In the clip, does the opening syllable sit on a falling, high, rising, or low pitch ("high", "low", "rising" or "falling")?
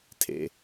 low